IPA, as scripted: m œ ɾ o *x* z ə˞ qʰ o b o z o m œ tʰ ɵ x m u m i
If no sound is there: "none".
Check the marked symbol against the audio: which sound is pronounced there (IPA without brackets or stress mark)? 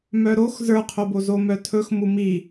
x